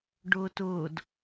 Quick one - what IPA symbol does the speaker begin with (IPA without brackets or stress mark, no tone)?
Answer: ɖ